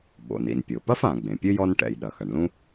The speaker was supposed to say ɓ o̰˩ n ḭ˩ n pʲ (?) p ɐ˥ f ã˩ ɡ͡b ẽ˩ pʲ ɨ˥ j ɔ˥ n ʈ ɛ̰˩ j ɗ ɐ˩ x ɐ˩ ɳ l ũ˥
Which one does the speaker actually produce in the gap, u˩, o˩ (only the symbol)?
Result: o˩